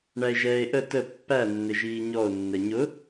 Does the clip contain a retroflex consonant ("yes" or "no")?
yes